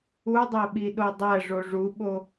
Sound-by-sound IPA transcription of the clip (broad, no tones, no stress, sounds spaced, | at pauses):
u dˤ æ ɓ i ɗ o dˤ æ ʐ o ʐ u ɓ o